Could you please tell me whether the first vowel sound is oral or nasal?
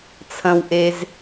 nasal